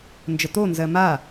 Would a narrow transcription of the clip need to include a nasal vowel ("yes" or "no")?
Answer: no